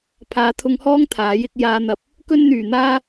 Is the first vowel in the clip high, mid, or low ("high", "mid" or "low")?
low